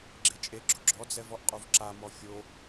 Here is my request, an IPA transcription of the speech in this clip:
ɡ͡ǁet͡ʃʼeɡ͡ǁʊ ɡ͡ǁɔd͡zɛv ɔʔqʼuvǁamɔ fʲo

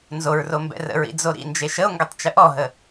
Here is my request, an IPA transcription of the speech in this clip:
nzoɹro mbɛ̰rə̰ɹḭ d͡zoɾḭnd͡ʒe ʃəo̯ŋɡətˤ t͡ʃəʔɔɦə

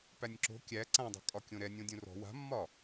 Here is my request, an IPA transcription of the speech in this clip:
pænʲǁo̤ kʲæ ǀãdˤo̤ kʼɒkʲõɾɛnʲõ dʲõrɔ̤ wa̤mːɒ

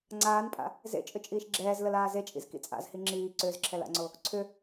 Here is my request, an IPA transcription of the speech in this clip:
ŋ͡ǀaːnpʼa̰ | zḛt͡ʃʼʏt͡ʃʼiːʃ ɡ͡ǁɛːzləlaː zet͡ʃʼḭzkḭ t͡sʼa̰zhi ŋ͡ǁiː ǀʏːzǁʰɛla̰ŋ͡ǀo | ǀʰʏ

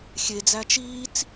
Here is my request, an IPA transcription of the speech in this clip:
xʲed͡zæ t͡ʃiːt͡s

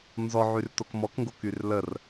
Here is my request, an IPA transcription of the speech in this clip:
nzɔʕyrtok mɔkŋɡokyr lər

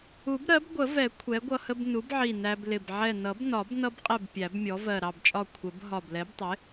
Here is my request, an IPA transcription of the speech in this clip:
u˨˩˦bɾɜ˩˥bɡʷə˨˩˦vɛ˨˩˦ kʷʰɛ˩˥ɡʷʌ˧hə˧b nu˩˥bʕi˧˩ næ˧blɪ˧˩b ʕɛ˧˩nʌ˨˩˦bnɒ˨˩˦b nʌ˧bqʼɛ˧˩b pʲæ˨˩˦bmʲɔ˩˥vɜ˧˩ ɾɑ˧˩bt͡ʃʼɒ˧˩ kʷʰə˨˩˦b ɦɒ˧˩blɛ˩˥btˤɪ˩˥

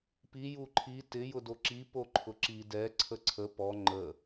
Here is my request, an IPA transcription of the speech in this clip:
pi juǃʰi tɪ jʊdoǁi poǃʰʊǁi dɛ ǀʰəǀʰə pɔ ŋ͡ǃə

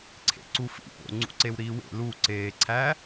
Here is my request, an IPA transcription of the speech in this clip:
ǀʰḛǀufḭpo̰ ŋ͡ǀṵǀewɾiːwḛ lu ǀeːǀʰæ

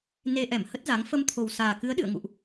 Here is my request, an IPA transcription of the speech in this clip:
ne˧ʔɛ˧˩m hə˦˥t̚za˨˦ŋ fə˧mt̪ʰo˨˩wsaː˨˩kɨ˨˦ə̯ ɗɨ̰˧˨ə̯ŋṵ˧˨ʔ

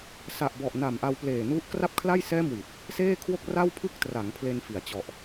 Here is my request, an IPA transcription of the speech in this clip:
sa˨˩ʔbɔ˨˩ʔna˨˩m ʔa˧wpleː˨˩nu˦˥ʔ kra˥˩p̚kʰla˥˩jsɛː˥˩mwi˨˩t̚ | seː˥˩kʰwo˥˩k̚ ra˥˩wpʰɯ˥˩k̚tra˩˦ŋ pʰle˧nfi˩˦a̯ t͡ɕɔ˨˩ʔ

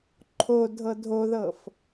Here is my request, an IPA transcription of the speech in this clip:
ǃʰo dʱɤdʱoðɤf

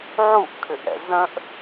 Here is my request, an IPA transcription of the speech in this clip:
ʕuʔkʰʏʔɛ̰ zə̃ʔ

